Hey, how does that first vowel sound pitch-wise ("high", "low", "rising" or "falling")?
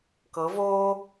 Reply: rising